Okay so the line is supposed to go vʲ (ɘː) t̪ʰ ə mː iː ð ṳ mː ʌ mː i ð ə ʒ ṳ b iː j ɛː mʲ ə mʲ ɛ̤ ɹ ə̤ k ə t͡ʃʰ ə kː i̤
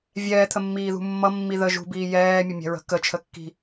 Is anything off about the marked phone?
yes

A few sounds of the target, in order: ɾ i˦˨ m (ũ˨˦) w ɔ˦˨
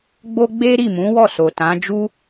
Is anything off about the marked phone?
no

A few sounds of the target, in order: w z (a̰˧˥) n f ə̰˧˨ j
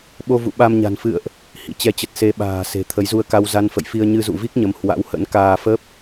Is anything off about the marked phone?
yes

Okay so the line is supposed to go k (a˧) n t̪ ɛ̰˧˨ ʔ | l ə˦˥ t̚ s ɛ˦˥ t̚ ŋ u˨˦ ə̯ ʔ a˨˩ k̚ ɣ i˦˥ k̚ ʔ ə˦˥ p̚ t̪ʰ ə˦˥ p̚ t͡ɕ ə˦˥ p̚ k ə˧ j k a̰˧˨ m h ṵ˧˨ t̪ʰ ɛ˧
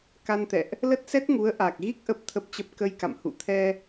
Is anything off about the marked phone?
no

